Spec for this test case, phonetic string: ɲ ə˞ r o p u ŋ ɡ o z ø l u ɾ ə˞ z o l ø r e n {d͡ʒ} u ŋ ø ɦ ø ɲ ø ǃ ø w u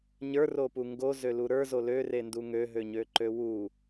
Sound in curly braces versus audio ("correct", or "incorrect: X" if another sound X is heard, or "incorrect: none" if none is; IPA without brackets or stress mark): incorrect: d